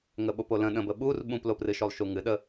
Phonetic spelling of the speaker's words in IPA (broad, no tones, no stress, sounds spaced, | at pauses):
ŋ ə ɓ o p o l ə̃ ɗ ə̃ b ə ɓ u r ɓ ũ p l o p r ɨ ʃ o lˠ ʃ u ŋ ɨ ɗ ə